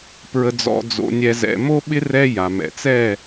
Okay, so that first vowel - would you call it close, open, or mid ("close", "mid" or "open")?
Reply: mid